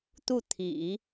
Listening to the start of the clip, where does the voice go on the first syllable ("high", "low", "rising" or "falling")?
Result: falling